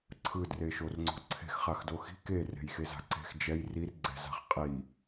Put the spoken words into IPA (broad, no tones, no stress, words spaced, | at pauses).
ǀʰɯdreʃorŋ͡ǀo̤ ǀʰe̤xχaxdo xi̤ kere̤jxeza̤ ǀe̤x d͡ʒɛj rirɡ͡ǀɛ̤za̤χ qʼi